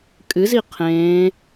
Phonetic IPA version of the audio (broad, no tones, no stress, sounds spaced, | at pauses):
kʼ ɨ z i qʰ ẽː